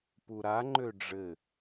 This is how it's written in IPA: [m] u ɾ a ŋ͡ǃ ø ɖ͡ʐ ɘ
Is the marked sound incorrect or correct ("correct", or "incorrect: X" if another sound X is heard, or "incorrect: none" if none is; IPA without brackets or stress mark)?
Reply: incorrect: p